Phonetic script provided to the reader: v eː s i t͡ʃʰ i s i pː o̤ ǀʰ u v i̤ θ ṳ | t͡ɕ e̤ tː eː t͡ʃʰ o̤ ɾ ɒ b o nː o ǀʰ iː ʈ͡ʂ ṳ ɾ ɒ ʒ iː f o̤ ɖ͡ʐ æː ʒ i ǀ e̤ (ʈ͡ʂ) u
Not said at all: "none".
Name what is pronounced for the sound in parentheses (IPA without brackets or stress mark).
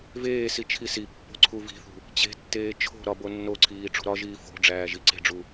ɖ͡ʐ